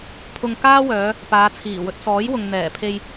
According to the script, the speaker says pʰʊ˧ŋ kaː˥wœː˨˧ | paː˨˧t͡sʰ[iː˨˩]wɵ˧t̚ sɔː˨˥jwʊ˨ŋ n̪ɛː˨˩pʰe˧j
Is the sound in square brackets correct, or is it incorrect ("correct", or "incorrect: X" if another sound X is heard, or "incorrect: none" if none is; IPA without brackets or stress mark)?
correct